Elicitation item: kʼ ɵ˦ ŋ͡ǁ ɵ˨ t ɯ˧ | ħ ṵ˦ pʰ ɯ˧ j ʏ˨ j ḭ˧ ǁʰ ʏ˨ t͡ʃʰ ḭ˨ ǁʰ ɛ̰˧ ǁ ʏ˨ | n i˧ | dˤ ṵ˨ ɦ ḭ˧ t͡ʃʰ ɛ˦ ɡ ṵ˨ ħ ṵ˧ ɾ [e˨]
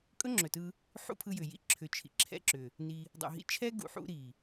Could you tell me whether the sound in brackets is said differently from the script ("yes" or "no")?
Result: yes